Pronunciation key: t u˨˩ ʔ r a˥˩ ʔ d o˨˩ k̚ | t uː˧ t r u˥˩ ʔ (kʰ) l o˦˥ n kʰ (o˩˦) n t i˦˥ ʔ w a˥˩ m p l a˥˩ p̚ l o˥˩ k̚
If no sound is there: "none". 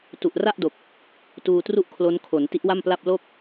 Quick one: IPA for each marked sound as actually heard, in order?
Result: kʰ, o˩˦

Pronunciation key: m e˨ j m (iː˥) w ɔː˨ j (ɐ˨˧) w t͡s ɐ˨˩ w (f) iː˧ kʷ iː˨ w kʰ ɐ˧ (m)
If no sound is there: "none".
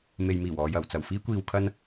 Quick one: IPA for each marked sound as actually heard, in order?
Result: iː˨˩, ɐ˨˩, f, n

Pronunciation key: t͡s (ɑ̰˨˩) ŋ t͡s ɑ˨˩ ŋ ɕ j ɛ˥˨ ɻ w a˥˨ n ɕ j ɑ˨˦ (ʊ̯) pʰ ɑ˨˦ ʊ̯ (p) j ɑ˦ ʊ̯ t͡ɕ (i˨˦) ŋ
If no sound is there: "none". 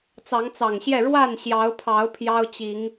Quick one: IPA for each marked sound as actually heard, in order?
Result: ɑ˨˦, ʊ̯, pʰ, i˨˦

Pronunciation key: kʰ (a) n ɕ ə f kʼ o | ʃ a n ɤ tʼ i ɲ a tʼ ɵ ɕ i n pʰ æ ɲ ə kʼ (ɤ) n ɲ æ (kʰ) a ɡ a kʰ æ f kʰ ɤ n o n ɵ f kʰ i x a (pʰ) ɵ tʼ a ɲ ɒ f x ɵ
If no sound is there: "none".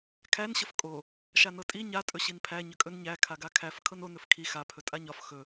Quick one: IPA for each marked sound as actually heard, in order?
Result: æ, ɵ, kʰ, pʰ

